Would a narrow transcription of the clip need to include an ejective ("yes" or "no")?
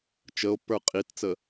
yes